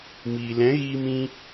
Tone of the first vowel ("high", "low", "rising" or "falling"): low